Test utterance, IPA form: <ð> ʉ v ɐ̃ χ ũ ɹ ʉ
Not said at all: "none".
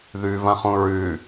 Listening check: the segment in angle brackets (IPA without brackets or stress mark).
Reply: ð